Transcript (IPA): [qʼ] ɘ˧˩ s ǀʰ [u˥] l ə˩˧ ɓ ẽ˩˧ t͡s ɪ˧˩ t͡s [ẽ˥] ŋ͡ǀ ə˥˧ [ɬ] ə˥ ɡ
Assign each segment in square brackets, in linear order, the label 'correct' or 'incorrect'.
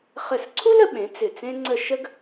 incorrect: χ, correct, correct, incorrect: ʃ

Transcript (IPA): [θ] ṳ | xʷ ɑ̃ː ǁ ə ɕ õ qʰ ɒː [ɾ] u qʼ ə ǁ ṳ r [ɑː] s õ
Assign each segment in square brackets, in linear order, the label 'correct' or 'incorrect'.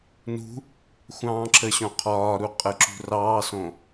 incorrect: n, correct, correct

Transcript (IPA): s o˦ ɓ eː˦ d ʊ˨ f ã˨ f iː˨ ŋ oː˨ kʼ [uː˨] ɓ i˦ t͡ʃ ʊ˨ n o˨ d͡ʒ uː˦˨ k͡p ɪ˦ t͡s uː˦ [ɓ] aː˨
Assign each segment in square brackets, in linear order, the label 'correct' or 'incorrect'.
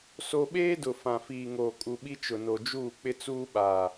incorrect: u˨, correct

